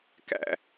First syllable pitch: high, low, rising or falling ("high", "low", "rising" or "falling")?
low